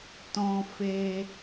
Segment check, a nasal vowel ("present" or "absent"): present